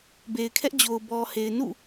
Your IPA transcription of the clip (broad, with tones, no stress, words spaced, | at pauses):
be˨ɪ̯kʰɛ˦ʔd͡ʑo˨ʊ̯ bɔ˨he˨ɪ̯ nṵ˦˨